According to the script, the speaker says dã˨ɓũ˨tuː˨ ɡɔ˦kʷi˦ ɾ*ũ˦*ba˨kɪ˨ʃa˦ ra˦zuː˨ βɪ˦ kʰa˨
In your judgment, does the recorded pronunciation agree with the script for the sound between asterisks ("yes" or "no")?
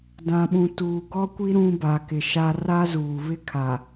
yes